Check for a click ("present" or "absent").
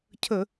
absent